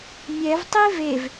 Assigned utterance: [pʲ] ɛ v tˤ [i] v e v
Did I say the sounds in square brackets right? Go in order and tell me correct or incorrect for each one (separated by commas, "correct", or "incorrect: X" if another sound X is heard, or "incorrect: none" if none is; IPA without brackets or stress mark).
incorrect: mʲ, correct